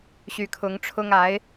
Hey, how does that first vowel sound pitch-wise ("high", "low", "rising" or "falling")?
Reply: rising